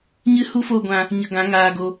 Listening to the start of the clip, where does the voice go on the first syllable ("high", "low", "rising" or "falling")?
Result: high